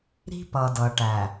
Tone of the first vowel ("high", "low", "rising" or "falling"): high